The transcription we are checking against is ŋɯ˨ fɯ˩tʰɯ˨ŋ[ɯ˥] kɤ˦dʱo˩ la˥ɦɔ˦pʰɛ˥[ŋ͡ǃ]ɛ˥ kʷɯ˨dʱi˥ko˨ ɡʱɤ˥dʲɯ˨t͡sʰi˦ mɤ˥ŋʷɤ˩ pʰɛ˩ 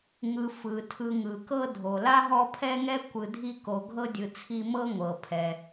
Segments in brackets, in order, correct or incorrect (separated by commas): incorrect, incorrect